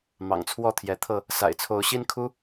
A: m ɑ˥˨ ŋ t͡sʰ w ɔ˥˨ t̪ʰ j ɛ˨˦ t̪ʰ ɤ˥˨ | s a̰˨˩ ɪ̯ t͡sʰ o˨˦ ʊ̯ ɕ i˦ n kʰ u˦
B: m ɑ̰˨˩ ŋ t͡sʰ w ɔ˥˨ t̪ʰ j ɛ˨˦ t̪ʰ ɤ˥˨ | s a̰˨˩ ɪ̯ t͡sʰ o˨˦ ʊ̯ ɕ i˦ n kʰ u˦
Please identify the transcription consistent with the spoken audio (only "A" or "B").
B